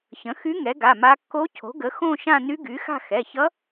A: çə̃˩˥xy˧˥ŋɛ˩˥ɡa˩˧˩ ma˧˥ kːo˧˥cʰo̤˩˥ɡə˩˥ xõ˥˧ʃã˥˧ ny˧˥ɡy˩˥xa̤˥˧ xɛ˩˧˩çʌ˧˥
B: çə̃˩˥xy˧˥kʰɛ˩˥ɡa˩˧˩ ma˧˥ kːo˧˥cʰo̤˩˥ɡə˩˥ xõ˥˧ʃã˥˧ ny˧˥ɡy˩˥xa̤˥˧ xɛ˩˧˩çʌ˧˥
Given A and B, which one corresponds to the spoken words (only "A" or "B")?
A